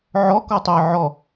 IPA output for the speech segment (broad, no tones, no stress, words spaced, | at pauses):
ʕɔ kɔtˤe ʕɔ